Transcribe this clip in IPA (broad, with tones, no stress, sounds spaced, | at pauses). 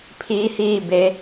pʰ iː˧˥ h iː˥˨ b e˩˧